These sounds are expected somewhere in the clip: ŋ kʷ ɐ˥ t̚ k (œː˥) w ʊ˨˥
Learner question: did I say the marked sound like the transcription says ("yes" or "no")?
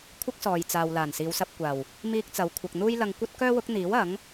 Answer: yes